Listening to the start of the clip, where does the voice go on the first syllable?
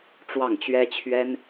falling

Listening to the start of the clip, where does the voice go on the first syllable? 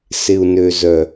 low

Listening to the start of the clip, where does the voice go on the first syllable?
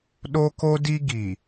high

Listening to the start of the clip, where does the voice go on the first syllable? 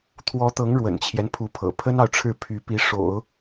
rising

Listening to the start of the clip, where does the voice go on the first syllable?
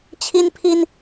high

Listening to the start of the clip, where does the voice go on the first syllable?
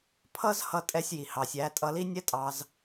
high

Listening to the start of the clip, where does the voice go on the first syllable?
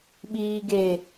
low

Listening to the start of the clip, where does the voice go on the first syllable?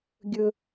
low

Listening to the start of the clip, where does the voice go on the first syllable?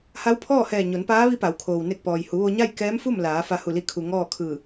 rising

